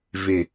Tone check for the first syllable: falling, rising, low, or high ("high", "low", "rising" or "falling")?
low